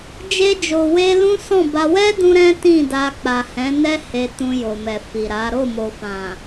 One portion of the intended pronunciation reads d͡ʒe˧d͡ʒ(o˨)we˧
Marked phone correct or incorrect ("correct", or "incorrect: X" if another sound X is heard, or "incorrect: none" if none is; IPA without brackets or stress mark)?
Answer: correct